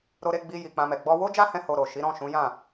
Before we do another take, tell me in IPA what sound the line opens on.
ɾ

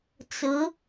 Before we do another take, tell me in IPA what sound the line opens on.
t͡s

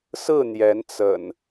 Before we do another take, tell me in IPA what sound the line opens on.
s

